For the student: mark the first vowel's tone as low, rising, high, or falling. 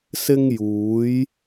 high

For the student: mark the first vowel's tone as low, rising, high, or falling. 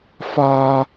high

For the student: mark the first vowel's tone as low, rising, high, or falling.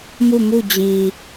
falling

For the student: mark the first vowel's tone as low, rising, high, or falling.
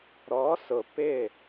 rising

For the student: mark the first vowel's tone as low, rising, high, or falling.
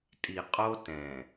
low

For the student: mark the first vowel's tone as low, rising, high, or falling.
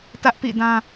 high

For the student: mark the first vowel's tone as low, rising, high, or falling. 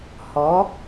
rising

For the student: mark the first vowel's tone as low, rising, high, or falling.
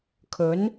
rising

